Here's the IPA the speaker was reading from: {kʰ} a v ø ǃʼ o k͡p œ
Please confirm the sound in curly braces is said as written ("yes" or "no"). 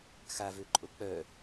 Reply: no